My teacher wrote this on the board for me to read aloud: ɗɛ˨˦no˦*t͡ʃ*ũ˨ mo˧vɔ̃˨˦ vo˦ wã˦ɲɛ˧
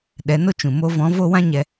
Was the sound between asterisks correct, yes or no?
yes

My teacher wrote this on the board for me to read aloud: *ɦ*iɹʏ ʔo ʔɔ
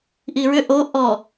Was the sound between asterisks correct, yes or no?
no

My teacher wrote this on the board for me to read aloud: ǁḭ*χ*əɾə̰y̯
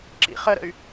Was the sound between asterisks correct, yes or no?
yes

